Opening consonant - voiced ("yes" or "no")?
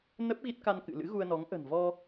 yes